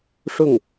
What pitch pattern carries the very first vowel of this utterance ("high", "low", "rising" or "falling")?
falling